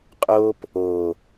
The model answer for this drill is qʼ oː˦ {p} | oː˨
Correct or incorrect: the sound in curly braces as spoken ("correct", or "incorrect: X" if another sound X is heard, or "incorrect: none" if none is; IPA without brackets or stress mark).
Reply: correct